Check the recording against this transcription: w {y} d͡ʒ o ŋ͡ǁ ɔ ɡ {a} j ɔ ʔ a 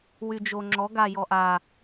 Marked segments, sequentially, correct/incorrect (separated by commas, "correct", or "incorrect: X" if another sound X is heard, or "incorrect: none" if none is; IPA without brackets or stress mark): correct, correct